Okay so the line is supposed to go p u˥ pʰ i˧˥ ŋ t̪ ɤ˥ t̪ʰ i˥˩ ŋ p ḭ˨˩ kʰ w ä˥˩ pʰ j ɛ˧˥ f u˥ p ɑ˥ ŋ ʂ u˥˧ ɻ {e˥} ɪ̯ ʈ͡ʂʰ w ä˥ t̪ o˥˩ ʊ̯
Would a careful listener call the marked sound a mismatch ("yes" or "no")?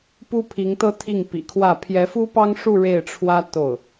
yes